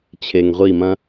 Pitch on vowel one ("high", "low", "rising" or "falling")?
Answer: low